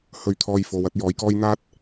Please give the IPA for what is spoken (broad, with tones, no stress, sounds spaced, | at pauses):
h ɵ˧ ɥ t̪ʰ ɔː˧ j f o˨˧ w ɐ˧ t̚ j ɔː˨˥ j k ɔː˥ j n̪ aː˥ t̚